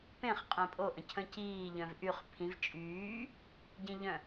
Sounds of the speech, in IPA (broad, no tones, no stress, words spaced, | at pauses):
pẽχ qʼẽpʼoʔə̃ cʰə̃ciː ʎœ̃vʔyχ pʰĩv t͡ʃʼyː | ɟĩʎœ̃